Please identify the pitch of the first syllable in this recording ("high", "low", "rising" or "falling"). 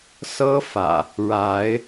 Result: high